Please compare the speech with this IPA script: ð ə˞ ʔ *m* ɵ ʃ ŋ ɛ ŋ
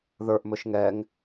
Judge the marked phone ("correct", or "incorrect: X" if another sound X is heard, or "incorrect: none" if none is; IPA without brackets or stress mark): correct